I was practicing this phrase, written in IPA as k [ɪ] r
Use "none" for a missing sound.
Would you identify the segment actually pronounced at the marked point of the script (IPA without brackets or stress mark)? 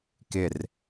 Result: ɪ